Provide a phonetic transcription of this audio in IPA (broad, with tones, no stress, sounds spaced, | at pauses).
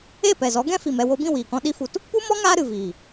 e˦˨ p ɛ˨ z ɔ˨˦ ɡ ɛ̃˦ f i˨ m ɛ˦˨ w o˧ b ĩ˦˨ w iː˨ k ɔ̃˧ ɗ i˦ f u˧ t | p u˦ m ɔ˦ ŋ aː˦ ɾ ɨ˨ v iː˨